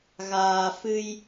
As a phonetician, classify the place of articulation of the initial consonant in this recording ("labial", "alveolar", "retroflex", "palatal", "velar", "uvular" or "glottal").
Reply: velar